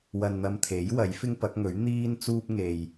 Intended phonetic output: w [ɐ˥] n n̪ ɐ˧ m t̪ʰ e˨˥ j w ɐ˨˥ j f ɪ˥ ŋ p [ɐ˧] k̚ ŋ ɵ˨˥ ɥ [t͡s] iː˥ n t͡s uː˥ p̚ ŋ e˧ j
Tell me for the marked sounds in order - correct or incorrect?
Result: incorrect: ɐ˧, incorrect: ɐ˨˥, incorrect: n̪

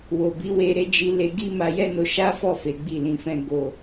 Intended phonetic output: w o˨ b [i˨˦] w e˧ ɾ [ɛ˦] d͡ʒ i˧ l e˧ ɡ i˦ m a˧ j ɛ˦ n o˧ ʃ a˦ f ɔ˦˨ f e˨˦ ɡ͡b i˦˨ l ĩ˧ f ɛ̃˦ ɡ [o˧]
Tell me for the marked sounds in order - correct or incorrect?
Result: correct, incorrect: e˦, correct

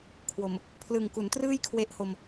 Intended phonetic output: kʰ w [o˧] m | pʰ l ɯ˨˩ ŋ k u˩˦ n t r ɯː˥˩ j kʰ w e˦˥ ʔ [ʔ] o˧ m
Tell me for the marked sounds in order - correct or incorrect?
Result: incorrect: o˨˩, incorrect: h

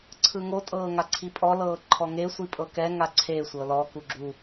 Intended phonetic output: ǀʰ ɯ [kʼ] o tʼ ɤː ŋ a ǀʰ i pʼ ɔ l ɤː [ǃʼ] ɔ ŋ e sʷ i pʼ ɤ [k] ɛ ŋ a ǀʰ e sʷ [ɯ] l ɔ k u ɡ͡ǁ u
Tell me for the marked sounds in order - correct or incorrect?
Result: incorrect: ŋ, incorrect: ǃʰ, correct, incorrect: ɤ

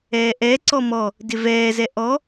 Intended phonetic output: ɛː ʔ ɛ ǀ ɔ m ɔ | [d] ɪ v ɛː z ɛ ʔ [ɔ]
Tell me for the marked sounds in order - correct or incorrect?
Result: correct, correct

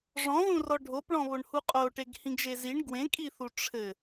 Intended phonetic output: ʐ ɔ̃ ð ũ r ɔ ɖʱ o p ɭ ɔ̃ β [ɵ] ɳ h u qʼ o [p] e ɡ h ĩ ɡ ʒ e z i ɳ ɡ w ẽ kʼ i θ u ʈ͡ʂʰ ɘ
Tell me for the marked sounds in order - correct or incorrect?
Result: incorrect: o, incorrect: ʈ

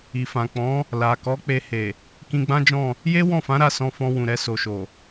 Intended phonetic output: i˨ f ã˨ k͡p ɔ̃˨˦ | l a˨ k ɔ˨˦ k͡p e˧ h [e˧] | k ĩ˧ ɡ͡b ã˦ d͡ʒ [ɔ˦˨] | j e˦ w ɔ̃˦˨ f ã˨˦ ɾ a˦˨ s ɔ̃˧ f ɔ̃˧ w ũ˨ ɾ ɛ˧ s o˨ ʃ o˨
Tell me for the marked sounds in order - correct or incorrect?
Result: incorrect: e˨, incorrect: ɔ̃˦˨

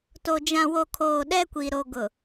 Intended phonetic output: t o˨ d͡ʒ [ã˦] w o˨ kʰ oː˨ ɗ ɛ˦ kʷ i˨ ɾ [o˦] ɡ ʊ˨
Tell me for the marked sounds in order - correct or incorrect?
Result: incorrect: ã˨, incorrect: o˨

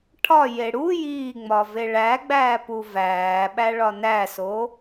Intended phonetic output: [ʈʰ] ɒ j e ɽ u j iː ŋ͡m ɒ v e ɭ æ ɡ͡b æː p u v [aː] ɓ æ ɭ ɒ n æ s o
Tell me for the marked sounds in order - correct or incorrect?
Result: correct, incorrect: æː

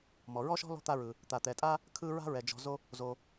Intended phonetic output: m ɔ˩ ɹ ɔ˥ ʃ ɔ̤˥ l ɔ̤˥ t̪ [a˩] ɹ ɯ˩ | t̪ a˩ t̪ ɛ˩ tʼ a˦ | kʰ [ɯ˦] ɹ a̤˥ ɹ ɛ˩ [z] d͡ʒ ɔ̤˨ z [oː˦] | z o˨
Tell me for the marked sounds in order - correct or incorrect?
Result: incorrect: a˦, correct, incorrect: none, incorrect: o˦

